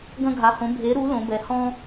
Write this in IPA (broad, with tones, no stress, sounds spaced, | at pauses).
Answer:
ɡ ɐ̃˥ ɡʱ a˧˥ h õ˧˥ bʱ e˧˥ ɾ u˧˥ l õ˧˥ b ɛ˧˥ h ɔ̃˥